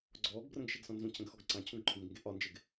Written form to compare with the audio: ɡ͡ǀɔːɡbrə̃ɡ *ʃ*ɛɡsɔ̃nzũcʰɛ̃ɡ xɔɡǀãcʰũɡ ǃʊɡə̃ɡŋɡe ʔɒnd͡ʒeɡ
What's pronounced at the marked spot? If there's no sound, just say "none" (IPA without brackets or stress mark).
ʃ